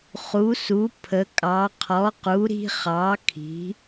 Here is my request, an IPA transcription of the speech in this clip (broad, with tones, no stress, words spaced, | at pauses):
χu˩˥su˩˥ pʰə˩˥kʼɑ˩˥ qʰɔ˩˥qu˩˥ɾi̤˦χɑ˩˥ kʰi̤˩˥